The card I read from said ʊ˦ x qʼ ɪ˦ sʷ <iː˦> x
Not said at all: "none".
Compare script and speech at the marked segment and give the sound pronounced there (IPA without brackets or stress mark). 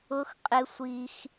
i˦